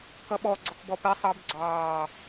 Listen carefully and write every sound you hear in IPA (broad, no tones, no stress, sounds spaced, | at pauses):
k ʌ ɓ ɔ ɡ͡ǀ ɔ k b ɔ p ɛ sˤ ɑ b ɡ͡ǀ ɑː